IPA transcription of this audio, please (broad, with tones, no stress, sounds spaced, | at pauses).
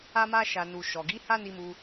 a˧ m a˧ ʃ a˨ n u˨ ʃ ɔ˨ ɡ i˨˦ h a˦ n i˧ m u˧